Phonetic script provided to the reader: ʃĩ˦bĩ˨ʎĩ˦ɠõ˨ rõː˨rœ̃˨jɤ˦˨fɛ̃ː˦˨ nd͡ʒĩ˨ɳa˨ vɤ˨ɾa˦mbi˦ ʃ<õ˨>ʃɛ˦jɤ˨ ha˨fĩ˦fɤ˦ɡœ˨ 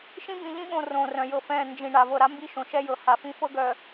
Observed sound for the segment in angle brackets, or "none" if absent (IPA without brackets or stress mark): õ˨